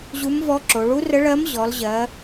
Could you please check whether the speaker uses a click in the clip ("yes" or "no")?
yes